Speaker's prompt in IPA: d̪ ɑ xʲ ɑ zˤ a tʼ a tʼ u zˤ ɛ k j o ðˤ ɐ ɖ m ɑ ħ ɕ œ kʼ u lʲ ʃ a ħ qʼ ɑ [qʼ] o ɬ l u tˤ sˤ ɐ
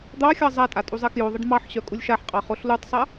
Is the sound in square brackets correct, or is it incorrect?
incorrect